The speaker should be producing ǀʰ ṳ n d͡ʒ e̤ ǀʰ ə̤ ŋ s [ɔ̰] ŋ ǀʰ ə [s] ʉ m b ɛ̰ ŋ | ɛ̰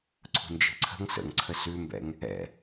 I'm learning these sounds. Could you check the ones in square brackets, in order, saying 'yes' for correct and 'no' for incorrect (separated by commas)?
no, yes